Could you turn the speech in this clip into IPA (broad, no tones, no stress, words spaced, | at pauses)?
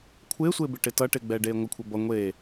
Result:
kʷʰɪːsʷɪː bɪʈɪtʌʈɪ ɡ͡bɛːɖeːŋʷɪkʷʰɘ bʌ ŋʷeː